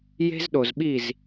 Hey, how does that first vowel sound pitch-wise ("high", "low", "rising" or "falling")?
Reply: high